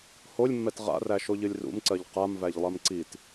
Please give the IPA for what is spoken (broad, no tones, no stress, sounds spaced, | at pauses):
h o lʲ mː ɛ t ʁ a̰ r æ ʃ o ʎ ɨ lʲ r ṵ m ǀ ɜ ʎ q a m v æ ʎ lˠ ɜ m ǀ i t